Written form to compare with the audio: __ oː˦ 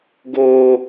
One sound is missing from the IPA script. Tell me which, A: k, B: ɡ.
B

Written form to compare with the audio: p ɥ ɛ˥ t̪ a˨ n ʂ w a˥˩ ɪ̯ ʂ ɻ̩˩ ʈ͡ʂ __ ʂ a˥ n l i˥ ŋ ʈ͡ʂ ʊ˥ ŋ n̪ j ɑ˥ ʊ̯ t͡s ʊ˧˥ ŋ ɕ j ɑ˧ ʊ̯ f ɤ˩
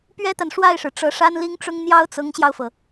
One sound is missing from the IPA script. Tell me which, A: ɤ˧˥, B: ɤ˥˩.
A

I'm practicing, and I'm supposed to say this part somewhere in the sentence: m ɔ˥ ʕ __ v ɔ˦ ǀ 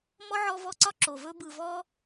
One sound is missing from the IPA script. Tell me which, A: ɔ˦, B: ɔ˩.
A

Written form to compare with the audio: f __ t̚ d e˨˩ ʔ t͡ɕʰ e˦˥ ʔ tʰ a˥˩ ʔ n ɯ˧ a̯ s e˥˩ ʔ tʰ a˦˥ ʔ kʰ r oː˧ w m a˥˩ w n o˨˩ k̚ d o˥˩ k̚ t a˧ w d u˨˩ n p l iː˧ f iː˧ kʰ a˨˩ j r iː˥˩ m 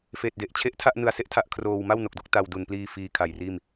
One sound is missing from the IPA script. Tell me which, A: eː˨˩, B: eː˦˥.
A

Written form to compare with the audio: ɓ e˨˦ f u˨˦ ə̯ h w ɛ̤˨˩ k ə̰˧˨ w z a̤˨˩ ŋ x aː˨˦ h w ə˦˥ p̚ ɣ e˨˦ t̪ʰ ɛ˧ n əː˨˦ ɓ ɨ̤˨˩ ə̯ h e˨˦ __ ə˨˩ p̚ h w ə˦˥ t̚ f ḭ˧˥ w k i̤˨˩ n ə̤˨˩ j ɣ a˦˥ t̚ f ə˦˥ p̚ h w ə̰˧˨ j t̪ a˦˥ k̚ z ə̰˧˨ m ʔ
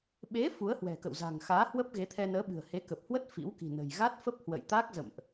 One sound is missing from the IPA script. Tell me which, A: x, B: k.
B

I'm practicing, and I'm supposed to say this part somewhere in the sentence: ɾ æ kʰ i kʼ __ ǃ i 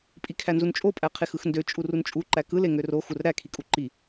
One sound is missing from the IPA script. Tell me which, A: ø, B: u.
B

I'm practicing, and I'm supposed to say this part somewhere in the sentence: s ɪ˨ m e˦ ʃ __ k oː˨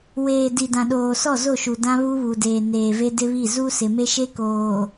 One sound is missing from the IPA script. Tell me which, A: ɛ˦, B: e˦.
B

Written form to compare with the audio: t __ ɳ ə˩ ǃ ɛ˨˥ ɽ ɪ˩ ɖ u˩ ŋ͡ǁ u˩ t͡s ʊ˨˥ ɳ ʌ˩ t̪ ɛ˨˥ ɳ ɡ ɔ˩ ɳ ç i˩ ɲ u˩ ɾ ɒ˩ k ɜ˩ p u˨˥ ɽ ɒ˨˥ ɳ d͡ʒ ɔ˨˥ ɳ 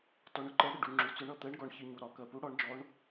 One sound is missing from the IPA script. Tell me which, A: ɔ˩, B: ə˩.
A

